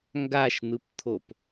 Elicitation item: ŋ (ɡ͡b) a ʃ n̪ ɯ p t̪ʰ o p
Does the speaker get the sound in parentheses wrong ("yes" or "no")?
yes